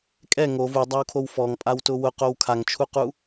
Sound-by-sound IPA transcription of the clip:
kʼɛ ŋo vudˤawkʰow fɔŋpʼawtʊ wʊqow kʰaŋt͡ʃʰuqu

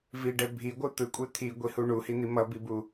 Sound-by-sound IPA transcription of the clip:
viɖɛ bʱiɡʷɯ t̪ɯkʷʼe t̪ʰiɡʷihu ɳuhin̪i mʌbibu

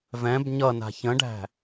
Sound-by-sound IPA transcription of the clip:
vɛ̃b ɲʌna̤ çə̃ɖæ̤

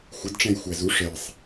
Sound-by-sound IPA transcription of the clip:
xʷɪdʈ͡ʂɛ̃j xʷæzu ʂɛsˤ

